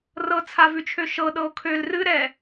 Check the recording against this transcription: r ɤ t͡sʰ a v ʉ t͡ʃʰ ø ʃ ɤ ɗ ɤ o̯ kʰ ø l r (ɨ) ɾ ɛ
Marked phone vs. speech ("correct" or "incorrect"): correct